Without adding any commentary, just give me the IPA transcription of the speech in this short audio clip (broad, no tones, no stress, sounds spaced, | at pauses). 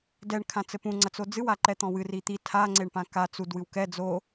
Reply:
d ɛ ɳ kʰ ã t͡s ɘ p ũ ŋ͡ǀ ɐ t͡s o d͡z ɨ w a ǃ ɛ t̪ ɔ̃ w ɨ r i t̪ i tʰ a ŋ͡ǀ e ɳ p ã k a t͡s u d w ɨ w k ɛ d͡z o